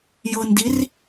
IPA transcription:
j ɤ n d i r

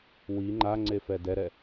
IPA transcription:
w i ŋ͡ǃ a ŋ͡ǀ e f ɛ d ɛ ɾ ɛ

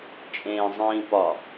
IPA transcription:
t͡ʃʼ ẽː zˤ ĩː p ɒ

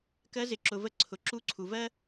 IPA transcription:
k ɜ˧˥ z ɪ˩˧ ǁ ʊ˩ v ə˧ ǀʰ ʊ˩ ǁ u˧˥ ǀʰ u˩ v ɜ˥

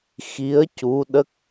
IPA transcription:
x i˧˥ ə̯ c u˧˥ ɗ ə˦˥ k̚

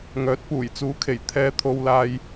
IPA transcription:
ŋ œː˨˥ t̚ p uː˨˩ j t͡s uː˨˥ kʰ e˨˩ j t̪ʰ ɛː˨˧ t̪ʰ o˨ w l aː˨ j

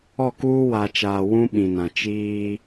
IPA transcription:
ɔ˦˨ k uː˦ w a˨ t͡ʃ aː˨ w ũ˦ ɓ ĩ˨ n ã˨ t͡ʃ iː˦

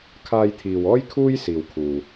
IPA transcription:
kʰ aː˧ j t̪ʰ iː˨ w ɔː˥ j kʰ uː˥ j s iː˨ w kʰ uː˨

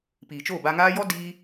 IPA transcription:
p iː˨ t͡ʃ oː˦˨ b a˧ ŋ aː˦ j ɔ˦ d iː˦

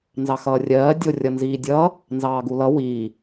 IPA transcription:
n z ɑ x ʌː rʲ ɜː dʲ o rʲ ʌ n z iː dʲ ʌː | n z ɑː ɡ u l ʌ w iː

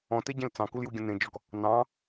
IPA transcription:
ɔ̃ t e ɟ ẽ l t͡s ɑ̃ k u l j u ɡʲ ə̃ n ẽ d͡ʒ ɔ k | n ɑ̃

